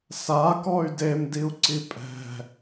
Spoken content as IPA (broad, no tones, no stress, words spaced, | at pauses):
sakɔy̯ demdiu̯ǀi pʼɛ̤